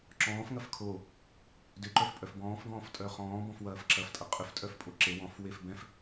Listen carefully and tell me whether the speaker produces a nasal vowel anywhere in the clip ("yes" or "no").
yes